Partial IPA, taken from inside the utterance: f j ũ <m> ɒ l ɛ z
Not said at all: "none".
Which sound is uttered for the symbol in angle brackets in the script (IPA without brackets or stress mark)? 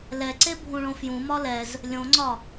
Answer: m